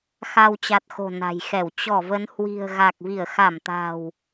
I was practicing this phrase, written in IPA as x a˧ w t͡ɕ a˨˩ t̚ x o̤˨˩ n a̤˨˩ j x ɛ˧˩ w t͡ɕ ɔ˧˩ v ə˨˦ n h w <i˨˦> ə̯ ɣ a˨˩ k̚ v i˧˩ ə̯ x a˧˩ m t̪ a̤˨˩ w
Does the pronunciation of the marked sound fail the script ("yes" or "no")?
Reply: yes